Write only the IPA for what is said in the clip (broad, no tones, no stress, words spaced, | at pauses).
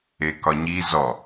ekɒɲi zɔ